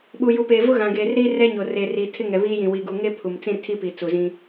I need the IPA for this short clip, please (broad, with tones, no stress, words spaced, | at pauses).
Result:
ɓu˨ju˨peː˨ vʊ˦ɣã˨ɡeː˨r ɾiː˦rɛ˦ɲo˨r e˨ri˨tʰɪ˦ ŋɛ˨βiː˦jĩ˨wi˨ ɡu˨ŋe˦ pʰu˨mt͡sĩ˦rtʰi˦pi˨ t͡su˨zĩ˦